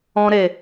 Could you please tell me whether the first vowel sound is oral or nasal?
nasal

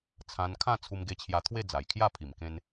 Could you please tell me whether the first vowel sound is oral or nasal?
nasal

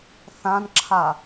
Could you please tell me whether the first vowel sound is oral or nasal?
nasal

